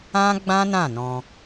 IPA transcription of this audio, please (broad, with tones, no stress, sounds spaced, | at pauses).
ã˦ ɡ͡b ã˦ n ã˦˨ n ɔ̃˧